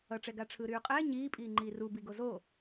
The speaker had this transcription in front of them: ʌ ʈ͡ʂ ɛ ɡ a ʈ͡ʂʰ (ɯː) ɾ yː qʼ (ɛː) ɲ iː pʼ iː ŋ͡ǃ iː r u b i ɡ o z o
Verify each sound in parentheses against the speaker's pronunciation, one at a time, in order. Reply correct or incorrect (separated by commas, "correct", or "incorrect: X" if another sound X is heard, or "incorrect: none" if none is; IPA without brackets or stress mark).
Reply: correct, correct